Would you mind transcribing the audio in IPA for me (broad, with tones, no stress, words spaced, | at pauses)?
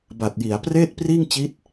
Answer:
ba˨˩t̚ji˩˦a̯ preː˥˩t̚priː˥˩ŋt͡ɕi˦˥t̚